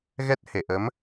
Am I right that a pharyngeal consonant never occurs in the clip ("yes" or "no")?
yes